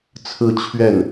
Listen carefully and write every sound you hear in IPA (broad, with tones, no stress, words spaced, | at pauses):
t͡sʰɹ̩˥˧t͡ɕʰɥɛ˥˩n